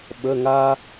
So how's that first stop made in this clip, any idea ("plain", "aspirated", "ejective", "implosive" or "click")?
implosive